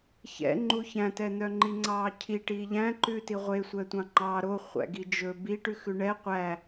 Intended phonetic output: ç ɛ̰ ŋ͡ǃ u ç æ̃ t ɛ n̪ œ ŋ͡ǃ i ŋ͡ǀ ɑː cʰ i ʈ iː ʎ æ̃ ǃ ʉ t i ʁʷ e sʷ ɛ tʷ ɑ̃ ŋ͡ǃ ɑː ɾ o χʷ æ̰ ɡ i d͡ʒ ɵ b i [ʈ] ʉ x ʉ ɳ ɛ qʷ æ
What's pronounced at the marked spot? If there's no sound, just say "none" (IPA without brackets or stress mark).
ʈ